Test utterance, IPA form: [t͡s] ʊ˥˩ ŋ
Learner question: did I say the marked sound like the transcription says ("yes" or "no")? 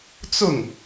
yes